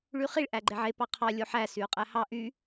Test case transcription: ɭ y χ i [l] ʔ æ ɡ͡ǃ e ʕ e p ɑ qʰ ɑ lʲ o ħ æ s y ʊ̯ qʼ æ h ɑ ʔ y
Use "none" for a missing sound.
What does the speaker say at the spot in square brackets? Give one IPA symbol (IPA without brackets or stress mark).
ɭ